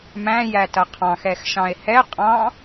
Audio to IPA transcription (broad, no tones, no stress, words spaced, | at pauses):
mæ̃ jætʌqʰɑ̃x ɛxʃɑ̃e̯hɛ qʼɑ̃